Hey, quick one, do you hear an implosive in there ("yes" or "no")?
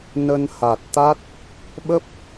yes